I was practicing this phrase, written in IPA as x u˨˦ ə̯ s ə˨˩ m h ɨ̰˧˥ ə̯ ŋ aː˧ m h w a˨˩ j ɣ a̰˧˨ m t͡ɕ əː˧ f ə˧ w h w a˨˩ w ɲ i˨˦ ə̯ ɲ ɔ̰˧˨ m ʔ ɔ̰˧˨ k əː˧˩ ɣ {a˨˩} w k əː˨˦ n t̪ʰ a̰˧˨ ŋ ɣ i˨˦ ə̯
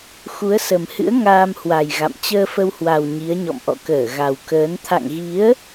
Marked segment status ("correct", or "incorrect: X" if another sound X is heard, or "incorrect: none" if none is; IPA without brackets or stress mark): correct